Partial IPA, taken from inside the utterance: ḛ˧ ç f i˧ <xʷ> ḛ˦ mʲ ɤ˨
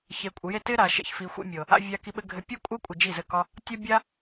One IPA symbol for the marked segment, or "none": xʷ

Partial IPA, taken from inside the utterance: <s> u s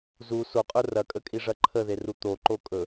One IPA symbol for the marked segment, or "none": z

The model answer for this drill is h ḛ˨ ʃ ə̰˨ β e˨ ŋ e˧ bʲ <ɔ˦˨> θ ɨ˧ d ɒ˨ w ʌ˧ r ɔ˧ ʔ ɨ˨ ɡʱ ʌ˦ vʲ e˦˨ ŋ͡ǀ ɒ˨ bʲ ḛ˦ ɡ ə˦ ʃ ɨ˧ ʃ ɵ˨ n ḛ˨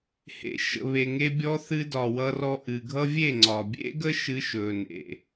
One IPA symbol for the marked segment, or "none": ɔ˧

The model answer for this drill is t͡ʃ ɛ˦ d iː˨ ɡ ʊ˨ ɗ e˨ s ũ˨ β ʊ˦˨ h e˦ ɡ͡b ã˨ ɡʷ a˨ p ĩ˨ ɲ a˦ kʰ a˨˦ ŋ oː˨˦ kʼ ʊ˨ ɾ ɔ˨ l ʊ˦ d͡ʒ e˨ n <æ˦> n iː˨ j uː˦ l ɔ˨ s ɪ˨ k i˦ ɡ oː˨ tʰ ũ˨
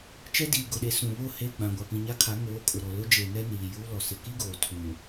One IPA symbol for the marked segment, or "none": ɛ˦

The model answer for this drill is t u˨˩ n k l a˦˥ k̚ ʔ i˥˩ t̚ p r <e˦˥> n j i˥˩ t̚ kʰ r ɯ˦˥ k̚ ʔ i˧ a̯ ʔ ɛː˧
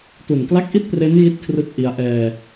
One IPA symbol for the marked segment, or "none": e˦˥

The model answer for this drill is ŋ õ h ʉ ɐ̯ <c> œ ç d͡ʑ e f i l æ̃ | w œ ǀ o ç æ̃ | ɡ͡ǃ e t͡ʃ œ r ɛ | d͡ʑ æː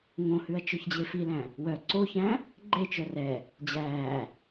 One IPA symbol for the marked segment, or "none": t͡ʃ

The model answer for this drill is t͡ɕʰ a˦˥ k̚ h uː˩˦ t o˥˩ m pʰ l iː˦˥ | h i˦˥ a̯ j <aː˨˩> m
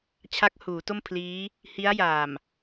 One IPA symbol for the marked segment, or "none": aː˨˩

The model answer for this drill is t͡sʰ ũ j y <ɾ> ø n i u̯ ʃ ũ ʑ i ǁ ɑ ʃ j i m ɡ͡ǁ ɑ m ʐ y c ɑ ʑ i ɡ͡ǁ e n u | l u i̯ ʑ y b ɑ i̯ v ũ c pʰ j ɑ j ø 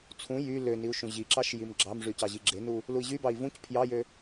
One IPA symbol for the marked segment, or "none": l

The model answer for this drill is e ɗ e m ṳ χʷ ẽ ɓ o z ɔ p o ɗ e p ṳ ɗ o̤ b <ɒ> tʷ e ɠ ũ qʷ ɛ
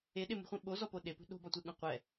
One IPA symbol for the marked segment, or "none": ɒ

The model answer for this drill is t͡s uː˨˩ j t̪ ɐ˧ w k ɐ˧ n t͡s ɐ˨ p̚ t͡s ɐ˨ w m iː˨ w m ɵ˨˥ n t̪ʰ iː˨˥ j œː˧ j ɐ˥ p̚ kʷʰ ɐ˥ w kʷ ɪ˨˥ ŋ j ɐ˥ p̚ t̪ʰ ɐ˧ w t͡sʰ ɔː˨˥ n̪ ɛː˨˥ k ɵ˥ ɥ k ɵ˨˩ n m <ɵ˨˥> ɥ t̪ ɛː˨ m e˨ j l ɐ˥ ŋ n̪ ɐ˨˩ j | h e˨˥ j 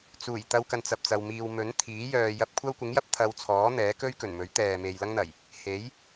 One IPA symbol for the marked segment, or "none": ɵ˨˥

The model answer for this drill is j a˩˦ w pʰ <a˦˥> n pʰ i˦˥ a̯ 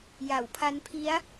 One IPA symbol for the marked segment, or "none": a˦˥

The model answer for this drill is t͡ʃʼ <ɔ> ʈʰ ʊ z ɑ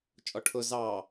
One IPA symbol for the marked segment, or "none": ɔ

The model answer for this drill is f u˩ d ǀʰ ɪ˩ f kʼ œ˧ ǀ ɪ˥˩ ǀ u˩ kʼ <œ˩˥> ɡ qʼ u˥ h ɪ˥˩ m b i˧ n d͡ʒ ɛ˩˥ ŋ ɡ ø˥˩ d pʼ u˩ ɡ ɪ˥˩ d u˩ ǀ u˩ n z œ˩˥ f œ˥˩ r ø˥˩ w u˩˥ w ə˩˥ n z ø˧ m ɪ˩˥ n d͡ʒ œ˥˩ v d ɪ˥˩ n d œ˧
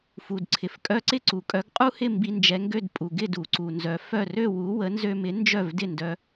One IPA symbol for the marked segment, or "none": œ˩˥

